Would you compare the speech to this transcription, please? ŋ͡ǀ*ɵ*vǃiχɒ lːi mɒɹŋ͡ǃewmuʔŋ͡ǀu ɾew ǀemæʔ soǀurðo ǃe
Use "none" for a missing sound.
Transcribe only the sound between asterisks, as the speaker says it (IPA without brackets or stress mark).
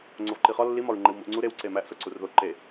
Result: o